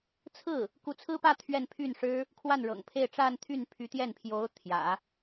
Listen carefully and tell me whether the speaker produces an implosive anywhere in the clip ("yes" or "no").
no